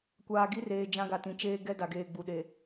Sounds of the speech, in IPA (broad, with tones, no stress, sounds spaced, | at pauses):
kʷ aː˨ ɡ i˦ r eː˨ d͡ʒ ã˦ ɡ a˨ t ĩ˨ t͡ʃ eː˦ ɡ ɛ˦ d a˨ ɡ eː˨ ɡ͡b u˨ ɗ e˨